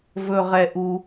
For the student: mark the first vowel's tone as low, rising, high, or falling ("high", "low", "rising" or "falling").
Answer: low